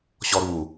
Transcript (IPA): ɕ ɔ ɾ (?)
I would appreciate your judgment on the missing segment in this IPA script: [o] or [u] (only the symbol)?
u